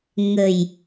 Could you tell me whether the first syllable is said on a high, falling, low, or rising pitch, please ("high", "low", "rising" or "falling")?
low